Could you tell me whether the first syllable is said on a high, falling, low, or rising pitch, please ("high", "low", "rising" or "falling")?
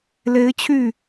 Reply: rising